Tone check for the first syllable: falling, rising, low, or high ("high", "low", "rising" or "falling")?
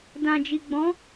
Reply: low